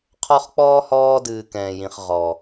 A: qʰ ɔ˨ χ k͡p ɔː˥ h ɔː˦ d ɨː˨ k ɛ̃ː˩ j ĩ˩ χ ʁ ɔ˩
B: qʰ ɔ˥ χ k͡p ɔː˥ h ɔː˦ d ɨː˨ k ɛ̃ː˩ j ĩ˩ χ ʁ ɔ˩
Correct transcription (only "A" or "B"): B